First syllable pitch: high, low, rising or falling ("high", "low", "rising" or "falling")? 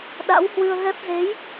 rising